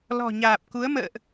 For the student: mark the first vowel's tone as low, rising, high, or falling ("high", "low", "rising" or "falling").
low